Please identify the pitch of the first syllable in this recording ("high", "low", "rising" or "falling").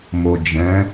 low